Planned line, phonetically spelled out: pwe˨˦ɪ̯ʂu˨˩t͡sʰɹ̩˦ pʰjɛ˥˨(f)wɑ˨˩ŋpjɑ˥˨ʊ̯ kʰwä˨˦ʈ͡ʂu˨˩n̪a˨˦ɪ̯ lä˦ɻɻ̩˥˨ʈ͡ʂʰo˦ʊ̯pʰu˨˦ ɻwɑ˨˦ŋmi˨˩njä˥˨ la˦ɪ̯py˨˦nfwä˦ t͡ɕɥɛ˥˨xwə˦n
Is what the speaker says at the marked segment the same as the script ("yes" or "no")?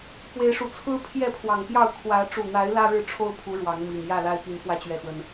no